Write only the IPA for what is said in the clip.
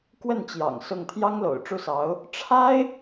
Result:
kwə˥˩nt͡ɕjɑ̰˨˩ŋ sʊ˥˩ŋ t̪ʰjɑ˥ŋlo̰˨˩ʊ̯ʈ͡ʂu˥˩sɑ˧˥ʊ̯ | ʈ͡ʂʰa˥ɪ̯

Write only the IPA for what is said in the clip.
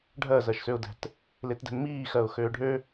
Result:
ɖʱɜzɜʃsøʊ̯dɛ̤t | letdɛ̤nmiːxɜʊ̯ xøːɖʱø

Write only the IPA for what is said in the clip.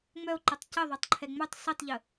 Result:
ŋ͡mœo̯ǃɛtˤ cəðˤɛtˤǃʰɛ ŋ͡mœtˤ sitˤʎə

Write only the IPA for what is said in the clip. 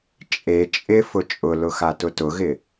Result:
t͡ʃʼe t͡ʃʼɪ fʊt͡ʃʼʊlʊxa tʊtʊɣɪ

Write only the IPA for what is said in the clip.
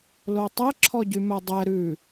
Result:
lotˤɛ ǁʰɔɟymœdˤɛ ɾʉ

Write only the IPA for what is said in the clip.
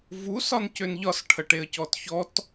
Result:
vus ɒncønʎɒs ʈʰəʈeə̯cɔtçɔt

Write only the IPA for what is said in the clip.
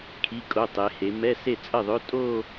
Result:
kʰi˧˥˧kʼo˧˥˧tˤe˨˦he˨˦ mɛ˧˥˧se˥˩ t͡sʼə˥˩ðˤø˧˥˧ tʼo˥˧

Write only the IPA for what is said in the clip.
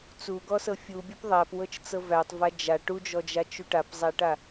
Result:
t͡suɡɔsɤ fʲubʲup ðˤæpwɤt͡ʃt͡sɤ vætˤva d͡ʒa ʈud͡ʒɔd͡ʒat͡ʃu ʈapzˤæʈa

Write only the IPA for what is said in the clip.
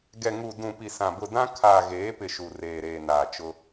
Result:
ɡɛ˨ŋu˨dũ˨ pi˨sã˨bʊ˨ dã˦ kʰaː˨ɣeː˨˦pɪ˨ ʃu˨reː˨ ɾeː˨naː˨t͡ʃʊ˦

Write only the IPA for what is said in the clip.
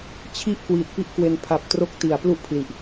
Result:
t͡ɕʰi˦˥ʔ kwiː˨˩t̚pi˥˩ʔkwe˧n pʰa˨˩p̚ tro˦˥k̚ ti˩˦a̯ plu˥˩ʔpʰli˨˩ʔ

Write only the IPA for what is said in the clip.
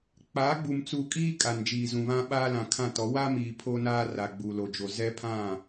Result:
k͡paː˨˦ɡ͡bu˨mt͡su˨kʼiː˦ kʼa˨nd͡ʒiː˨zũ˨βã˦ ɓaː˦lã˨kʰã˦˨tɔ˨˦ wa˦miː˨ pʰo˦naː˦ ra˨ɡ͡bu˨ lo˨d͡ʒo˨zɛ˦pʰã˦˨

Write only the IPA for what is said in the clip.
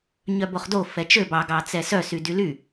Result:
ɲœboχdo fɛt͡ʃø bɑɡɑt͡sɛ sœ sydyly

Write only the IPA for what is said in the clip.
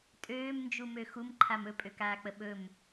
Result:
tʼøːmnd͡ʒumø xumǃʰam ɵpʼøkaːk͡pə ɓɵm

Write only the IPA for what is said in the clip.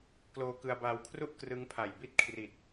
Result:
kloː˧kɯ˧a̯baː˧wkʰru˥˩ʔ krɯ˦˥ŋpʰa˨˩jbi˥˩t̚ kʰri˨˩t̚

